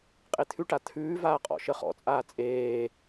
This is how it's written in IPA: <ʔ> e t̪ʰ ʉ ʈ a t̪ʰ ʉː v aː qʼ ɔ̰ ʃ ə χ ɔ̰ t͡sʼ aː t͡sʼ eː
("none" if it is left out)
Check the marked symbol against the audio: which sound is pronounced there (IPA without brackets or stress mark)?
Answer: qʼ